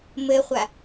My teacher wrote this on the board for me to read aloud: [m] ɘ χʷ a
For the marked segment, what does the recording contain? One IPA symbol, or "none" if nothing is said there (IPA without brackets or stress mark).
m